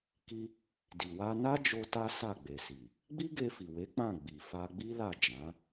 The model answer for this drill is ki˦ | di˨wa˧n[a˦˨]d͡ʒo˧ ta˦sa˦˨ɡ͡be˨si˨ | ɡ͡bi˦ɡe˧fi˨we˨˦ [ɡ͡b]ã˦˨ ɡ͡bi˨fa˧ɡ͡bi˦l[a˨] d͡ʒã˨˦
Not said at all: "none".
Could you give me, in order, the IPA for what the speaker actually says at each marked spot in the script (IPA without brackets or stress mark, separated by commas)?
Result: a˦, k͡p, a˦˨